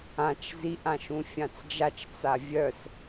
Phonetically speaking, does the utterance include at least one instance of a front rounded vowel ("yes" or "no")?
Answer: yes